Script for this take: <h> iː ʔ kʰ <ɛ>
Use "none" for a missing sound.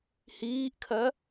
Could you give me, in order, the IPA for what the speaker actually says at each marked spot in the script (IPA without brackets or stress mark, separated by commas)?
h, ɜ